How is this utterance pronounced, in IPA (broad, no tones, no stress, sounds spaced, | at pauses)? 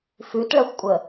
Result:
f ʉ t ɭ ɐ xʷ kʷʼ ə